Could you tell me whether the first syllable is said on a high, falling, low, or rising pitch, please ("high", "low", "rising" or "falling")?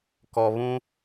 low